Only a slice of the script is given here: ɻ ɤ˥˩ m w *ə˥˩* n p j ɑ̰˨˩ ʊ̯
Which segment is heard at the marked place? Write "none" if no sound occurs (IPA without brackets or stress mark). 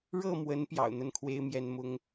ə˧˥